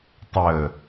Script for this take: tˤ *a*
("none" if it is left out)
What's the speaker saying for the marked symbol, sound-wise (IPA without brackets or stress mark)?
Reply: ə